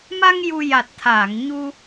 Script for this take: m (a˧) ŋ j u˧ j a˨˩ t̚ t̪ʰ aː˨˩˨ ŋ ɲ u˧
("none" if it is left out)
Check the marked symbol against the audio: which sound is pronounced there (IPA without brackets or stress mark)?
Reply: a˧